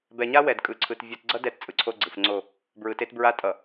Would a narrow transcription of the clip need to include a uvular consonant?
no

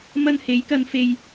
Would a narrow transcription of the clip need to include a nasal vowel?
no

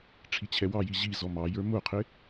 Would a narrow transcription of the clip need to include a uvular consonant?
yes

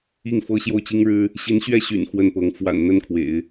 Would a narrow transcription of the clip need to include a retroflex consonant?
yes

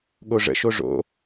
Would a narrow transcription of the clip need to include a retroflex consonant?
yes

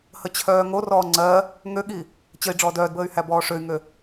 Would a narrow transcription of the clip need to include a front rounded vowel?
yes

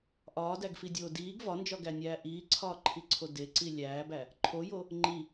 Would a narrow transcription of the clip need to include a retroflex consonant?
no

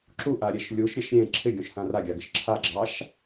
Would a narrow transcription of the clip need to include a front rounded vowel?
no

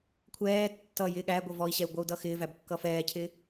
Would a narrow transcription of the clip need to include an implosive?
yes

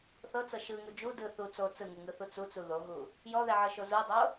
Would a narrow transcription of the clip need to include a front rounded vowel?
no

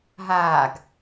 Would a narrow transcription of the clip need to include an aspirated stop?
no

